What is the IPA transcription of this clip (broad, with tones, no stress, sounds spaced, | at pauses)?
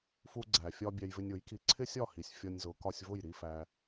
f u˧ ɡ͡ǀ æ˨ fʲ ɒ˧ bʲ æ˧ j v ɪ˧ nʲ ʊ˨˦ j k i˧ ǀʰ ɪ˦ sʲ ɒ˦˨ h i˨ sʲ fʲ ɒ˧ nʲ z ʊ˨˦ k ɒ˧ sʲ v ʊ˦˨ j ɾ i˦ f æ˧